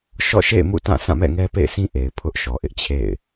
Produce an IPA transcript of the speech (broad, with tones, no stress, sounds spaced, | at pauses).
ʃ ɔ̰˦˨ ʃ ḛ˦˨ ɪ̯ m ṵ˦˨ t ã˦˨ s ã˦˨ m ɛ̰˦˨ ŋ ɛ˦ p ḛ˦˨ ɪ̯ s ĩ˦ ʔ e˨ ɪ̯ pʰ ʊ˦ ʔ ʃ ɔ˨ ʔ ɪ˦ ʔ t͡ɕʰ ḛ˦˨ ɪ̯